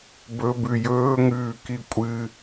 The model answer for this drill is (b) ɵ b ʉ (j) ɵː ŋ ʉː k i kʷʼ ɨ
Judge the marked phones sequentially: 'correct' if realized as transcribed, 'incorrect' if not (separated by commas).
correct, correct